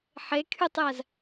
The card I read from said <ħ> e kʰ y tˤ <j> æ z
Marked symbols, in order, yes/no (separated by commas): yes, yes